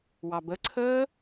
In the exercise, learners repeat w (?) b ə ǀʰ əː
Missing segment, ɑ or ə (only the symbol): ɑ